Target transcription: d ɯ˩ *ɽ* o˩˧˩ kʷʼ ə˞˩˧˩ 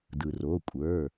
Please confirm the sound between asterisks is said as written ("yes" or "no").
no